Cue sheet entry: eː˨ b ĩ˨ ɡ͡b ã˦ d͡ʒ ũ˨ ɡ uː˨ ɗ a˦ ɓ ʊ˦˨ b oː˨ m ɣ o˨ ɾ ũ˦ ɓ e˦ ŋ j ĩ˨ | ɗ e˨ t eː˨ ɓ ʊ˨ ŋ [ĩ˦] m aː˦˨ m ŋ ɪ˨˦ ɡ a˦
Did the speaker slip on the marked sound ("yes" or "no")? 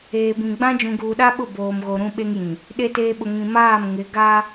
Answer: yes